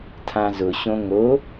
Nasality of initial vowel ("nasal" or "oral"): nasal